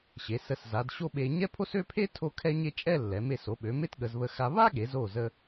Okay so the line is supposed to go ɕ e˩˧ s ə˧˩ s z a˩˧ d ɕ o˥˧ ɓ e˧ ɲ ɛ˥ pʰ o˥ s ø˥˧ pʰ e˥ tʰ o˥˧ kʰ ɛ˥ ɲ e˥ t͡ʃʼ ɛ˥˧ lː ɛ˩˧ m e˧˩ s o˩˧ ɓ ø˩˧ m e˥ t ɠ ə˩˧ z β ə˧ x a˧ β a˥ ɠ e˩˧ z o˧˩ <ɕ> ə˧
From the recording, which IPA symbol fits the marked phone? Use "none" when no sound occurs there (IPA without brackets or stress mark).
z